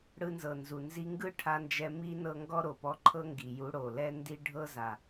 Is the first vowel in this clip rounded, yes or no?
no